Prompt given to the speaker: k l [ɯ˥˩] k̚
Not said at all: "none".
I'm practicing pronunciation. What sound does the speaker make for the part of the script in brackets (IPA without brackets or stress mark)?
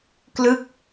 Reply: ɯ˥˩